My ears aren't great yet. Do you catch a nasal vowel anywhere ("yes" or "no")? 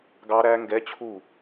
no